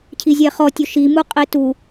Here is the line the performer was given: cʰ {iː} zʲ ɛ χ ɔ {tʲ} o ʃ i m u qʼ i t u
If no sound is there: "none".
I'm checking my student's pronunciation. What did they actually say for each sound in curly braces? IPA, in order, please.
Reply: i, tʲ

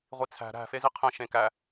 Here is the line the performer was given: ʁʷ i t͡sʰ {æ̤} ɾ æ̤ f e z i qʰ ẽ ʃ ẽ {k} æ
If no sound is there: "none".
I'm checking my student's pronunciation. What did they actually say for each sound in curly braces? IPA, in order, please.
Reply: æ̤, k

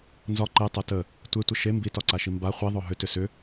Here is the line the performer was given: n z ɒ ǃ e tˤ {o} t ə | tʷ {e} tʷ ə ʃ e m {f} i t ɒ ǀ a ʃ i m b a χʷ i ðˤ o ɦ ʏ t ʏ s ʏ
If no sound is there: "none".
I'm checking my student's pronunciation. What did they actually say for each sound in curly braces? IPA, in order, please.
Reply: o, e, b

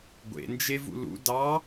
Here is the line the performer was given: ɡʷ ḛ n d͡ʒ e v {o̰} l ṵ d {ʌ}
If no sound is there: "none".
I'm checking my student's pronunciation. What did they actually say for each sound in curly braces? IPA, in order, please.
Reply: ṵ, ɑ

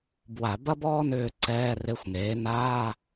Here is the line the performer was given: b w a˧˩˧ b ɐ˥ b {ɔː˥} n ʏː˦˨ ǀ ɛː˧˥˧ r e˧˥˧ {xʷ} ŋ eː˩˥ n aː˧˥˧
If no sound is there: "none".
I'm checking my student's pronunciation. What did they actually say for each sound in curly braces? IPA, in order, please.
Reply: ɔː˥, xʷ

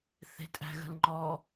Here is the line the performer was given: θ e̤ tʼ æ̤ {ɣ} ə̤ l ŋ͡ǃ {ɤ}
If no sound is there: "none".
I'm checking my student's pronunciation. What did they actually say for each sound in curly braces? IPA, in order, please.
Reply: ɣ, ɔ

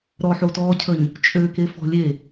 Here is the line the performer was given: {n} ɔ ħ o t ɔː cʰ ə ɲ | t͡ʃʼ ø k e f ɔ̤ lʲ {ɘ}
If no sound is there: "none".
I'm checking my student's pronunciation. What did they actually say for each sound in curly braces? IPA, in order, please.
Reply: ɾ, e

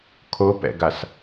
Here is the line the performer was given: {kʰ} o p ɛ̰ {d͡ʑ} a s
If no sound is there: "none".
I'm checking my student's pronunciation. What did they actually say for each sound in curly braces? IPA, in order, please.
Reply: kʰ, ɡ

